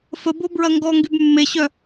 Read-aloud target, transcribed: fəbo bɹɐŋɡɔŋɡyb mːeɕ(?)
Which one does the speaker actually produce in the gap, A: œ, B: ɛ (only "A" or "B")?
A